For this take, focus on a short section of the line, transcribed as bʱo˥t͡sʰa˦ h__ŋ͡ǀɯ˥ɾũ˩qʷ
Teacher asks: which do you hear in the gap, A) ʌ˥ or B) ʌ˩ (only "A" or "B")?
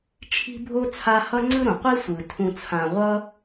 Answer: A